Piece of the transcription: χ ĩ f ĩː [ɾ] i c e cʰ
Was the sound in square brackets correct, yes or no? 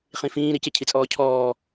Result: yes